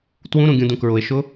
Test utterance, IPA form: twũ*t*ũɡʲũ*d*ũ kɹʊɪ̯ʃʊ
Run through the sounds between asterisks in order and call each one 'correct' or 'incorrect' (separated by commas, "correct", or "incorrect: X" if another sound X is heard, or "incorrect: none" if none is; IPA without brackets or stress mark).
incorrect: ɾ, correct